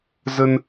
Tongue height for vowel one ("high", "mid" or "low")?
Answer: mid